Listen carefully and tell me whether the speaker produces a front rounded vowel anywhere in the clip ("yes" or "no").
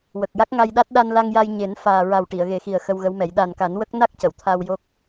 no